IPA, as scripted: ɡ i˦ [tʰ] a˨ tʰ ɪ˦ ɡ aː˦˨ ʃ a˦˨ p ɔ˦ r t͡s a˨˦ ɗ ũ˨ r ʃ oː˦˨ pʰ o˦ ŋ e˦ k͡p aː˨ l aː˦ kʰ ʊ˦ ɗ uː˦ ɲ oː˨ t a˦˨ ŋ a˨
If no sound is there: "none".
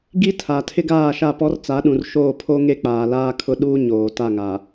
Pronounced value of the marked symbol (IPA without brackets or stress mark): tʰ